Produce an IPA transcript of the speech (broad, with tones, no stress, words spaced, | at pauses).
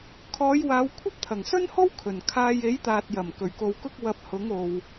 kʰɔː˨˧jwaː˨˧w kʷʰɐ˥p̚t̪ʰɐ˨˩ŋsɵ˥nho˥w kʰɵ˨˩nkʰaː˧j e˨˥jt̪aː˨t̚jɐ˨˩m kɵ˨˩ɥko˨wkʊ˥k̚ wɐ˧p̚hʊ˨˥ŋ o˧w